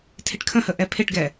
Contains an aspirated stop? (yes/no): yes